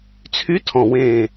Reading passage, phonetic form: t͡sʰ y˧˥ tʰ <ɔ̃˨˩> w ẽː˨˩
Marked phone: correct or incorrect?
correct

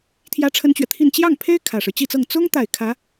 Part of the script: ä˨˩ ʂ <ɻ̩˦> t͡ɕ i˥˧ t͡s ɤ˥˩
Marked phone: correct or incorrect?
correct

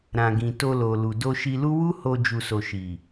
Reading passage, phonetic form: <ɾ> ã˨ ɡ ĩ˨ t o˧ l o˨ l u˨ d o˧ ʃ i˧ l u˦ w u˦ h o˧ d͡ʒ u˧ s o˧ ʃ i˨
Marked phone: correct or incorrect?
correct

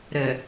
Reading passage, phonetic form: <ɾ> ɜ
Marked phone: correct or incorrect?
correct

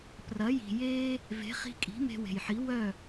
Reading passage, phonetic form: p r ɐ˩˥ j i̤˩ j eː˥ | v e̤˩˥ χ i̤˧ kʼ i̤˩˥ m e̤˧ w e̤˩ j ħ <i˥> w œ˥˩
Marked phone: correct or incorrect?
incorrect: i˩˥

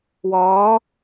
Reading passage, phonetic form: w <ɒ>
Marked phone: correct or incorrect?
incorrect: ɒː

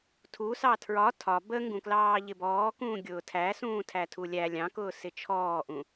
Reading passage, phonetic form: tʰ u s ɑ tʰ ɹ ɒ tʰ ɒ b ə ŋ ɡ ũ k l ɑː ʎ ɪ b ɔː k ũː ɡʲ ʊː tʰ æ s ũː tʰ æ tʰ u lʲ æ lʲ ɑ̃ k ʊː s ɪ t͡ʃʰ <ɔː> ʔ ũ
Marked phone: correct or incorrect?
correct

